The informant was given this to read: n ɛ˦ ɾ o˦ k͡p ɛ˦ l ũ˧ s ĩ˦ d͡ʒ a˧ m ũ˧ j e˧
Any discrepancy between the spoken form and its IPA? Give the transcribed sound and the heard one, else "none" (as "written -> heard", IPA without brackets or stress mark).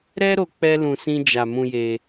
n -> ɾ